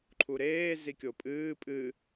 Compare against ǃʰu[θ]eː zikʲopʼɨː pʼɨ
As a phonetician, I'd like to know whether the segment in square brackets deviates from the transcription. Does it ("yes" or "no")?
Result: yes